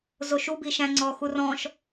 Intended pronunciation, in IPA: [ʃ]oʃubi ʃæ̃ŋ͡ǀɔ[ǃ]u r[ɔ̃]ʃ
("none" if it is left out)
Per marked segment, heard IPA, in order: z, x, ɔ̃

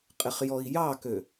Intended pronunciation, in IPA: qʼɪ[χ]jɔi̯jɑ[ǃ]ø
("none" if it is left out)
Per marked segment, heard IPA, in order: χ, k

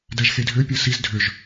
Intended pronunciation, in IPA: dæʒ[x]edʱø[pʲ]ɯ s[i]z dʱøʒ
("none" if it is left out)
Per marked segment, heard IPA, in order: x, pʲ, i

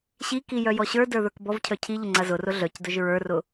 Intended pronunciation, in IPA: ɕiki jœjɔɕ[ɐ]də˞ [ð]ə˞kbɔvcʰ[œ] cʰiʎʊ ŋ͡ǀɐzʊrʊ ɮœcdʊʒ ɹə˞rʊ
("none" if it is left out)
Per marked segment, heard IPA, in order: ə˞, ð, œ

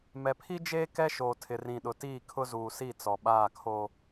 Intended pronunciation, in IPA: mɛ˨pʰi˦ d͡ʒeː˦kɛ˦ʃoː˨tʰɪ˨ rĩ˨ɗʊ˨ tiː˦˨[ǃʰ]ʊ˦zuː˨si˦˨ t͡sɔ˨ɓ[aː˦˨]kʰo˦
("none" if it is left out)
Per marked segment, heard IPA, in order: kʰ, aː˦˨

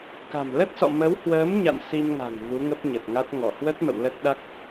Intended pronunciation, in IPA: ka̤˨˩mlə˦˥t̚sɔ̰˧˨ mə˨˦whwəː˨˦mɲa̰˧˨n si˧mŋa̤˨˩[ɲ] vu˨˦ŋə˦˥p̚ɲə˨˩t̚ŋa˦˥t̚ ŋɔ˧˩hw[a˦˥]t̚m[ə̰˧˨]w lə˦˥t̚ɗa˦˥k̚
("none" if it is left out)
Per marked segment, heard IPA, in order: ŋ, ə˦˥, ə̰˧˨

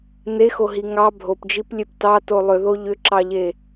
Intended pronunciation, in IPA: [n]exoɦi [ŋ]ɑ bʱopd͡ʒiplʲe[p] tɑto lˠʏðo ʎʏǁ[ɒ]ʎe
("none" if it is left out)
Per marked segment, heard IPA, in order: n, ŋ, p, ɑ

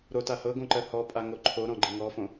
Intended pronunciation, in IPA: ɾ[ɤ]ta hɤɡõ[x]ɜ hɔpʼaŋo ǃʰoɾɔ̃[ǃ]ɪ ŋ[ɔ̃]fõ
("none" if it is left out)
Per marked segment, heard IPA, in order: o, ǃ, ɡ͡ǃ, ɔ

